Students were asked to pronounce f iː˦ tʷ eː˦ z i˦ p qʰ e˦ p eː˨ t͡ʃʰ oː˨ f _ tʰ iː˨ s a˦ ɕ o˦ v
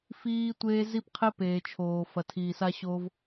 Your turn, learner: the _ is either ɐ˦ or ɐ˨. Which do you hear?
ɐ˨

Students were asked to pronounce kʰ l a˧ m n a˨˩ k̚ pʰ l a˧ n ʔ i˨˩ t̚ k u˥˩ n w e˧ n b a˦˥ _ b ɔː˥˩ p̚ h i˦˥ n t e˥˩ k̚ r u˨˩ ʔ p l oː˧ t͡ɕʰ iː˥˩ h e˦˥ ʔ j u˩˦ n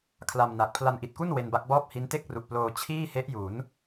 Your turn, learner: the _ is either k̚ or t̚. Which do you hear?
k̚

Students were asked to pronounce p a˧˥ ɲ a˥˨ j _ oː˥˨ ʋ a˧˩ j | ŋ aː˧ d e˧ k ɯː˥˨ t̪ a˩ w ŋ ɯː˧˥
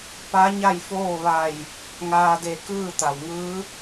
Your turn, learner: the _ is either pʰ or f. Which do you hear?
f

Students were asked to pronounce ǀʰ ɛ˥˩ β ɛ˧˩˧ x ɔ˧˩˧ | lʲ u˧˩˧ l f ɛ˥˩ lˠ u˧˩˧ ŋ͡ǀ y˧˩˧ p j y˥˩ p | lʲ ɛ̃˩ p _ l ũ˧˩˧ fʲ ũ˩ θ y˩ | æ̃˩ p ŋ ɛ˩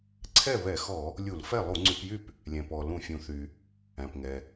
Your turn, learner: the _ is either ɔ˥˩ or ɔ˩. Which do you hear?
ɔ˩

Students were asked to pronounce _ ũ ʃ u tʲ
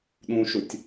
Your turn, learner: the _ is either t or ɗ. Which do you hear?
ɗ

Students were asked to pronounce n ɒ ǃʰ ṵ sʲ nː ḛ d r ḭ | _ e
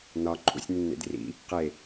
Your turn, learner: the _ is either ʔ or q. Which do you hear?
q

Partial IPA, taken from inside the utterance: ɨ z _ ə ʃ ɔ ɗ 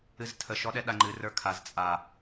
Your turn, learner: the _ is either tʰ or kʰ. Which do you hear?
tʰ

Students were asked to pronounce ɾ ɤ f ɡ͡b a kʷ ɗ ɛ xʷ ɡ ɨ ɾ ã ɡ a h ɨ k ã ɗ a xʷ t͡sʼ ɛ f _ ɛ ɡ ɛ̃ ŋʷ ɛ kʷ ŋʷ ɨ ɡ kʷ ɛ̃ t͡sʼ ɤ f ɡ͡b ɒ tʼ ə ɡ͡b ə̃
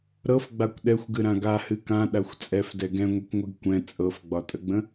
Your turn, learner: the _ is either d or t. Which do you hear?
d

